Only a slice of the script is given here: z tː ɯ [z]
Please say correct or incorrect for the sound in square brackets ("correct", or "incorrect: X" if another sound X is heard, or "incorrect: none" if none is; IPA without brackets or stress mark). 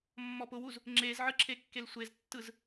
correct